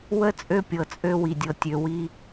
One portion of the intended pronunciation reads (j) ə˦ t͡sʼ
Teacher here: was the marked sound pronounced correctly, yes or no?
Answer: no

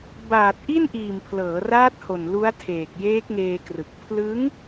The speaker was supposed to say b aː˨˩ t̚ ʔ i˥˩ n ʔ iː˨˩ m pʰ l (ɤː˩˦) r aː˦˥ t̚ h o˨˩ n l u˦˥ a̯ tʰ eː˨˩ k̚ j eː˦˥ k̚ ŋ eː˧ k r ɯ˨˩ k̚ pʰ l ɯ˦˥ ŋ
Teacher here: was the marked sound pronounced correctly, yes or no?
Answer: yes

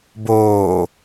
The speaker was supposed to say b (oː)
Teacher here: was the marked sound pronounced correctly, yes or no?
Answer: yes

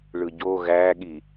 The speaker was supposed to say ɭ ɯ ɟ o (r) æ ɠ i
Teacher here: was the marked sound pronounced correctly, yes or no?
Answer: no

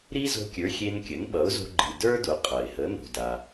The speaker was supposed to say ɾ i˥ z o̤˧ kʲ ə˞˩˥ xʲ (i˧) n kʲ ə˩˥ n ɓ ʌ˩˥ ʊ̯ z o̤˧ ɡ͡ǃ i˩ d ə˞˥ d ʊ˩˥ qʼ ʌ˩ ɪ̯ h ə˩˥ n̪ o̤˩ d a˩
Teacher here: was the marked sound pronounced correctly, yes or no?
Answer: no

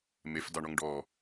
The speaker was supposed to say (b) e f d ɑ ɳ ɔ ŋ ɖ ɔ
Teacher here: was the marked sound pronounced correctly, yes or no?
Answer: no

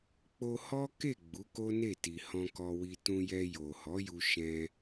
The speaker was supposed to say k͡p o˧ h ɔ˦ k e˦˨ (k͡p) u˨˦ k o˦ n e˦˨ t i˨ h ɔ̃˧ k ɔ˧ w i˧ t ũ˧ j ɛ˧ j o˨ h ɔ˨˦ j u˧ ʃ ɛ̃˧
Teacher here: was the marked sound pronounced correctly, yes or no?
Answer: no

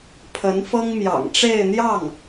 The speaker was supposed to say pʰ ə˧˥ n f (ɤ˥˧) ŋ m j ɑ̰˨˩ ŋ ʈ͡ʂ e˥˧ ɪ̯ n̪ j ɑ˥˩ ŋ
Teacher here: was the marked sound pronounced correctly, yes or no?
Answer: no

